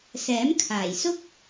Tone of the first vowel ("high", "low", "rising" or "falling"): rising